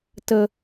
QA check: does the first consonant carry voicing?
no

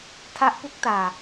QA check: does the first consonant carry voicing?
no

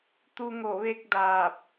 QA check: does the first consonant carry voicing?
no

